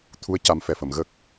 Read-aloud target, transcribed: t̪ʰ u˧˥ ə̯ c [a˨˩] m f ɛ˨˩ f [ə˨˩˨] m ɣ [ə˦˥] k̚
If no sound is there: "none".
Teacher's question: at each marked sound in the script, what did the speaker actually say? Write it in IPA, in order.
a˧˥, ə˨˩˨, ə˦˥

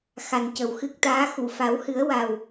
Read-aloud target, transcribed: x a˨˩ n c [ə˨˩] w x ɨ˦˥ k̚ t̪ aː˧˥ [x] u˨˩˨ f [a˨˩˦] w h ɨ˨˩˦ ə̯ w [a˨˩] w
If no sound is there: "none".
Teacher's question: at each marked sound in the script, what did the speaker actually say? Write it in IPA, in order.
ə˨˩, x, a˨˩˦, a˨˩

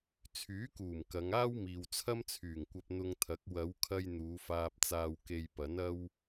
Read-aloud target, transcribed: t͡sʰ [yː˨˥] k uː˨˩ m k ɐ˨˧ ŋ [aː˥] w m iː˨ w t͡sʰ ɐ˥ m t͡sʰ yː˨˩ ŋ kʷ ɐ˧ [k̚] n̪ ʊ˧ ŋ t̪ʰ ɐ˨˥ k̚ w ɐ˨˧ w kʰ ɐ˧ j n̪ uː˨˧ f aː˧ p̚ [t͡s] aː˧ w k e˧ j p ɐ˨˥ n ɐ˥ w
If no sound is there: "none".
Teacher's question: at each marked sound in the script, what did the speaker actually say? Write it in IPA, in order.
yː˨˥, aː˥, p̚, t͡s

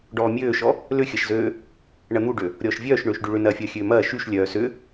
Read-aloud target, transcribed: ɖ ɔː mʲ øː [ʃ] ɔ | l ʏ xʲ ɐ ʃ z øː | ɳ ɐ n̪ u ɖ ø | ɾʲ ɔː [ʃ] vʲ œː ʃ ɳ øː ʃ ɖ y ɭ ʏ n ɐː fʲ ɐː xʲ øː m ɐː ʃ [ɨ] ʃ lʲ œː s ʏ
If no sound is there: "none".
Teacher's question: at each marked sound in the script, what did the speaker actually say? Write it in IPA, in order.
ʃ, ʃ, y

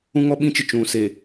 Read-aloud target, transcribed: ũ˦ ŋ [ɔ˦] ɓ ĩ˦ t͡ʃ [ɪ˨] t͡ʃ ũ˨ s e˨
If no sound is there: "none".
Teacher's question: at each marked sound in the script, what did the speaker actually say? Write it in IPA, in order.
ɔ˦, ɪ˨

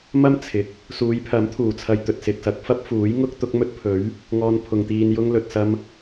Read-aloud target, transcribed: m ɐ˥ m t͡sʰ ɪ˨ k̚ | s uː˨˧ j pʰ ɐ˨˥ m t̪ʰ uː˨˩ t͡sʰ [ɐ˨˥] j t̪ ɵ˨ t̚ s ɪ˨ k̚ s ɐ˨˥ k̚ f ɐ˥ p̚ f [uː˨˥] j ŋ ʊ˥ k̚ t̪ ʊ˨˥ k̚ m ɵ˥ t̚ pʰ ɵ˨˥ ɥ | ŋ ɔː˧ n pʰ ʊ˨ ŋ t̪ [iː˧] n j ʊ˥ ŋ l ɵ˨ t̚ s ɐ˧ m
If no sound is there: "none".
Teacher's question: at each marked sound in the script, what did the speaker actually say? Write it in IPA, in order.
ɐ˨, uː˨˥, iː˧

